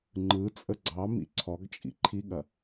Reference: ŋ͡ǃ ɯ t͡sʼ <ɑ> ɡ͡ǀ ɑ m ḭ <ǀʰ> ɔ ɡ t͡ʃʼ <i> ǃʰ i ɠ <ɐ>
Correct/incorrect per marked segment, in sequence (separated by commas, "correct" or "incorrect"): incorrect, correct, incorrect, correct